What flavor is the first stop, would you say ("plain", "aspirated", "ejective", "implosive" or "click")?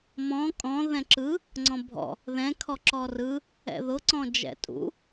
ejective